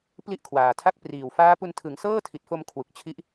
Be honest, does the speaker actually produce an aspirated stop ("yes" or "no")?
yes